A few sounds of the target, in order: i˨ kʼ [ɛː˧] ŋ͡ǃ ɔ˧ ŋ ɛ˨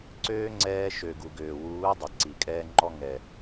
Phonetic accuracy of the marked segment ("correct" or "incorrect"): correct